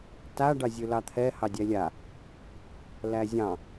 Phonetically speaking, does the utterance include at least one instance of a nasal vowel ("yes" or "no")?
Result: yes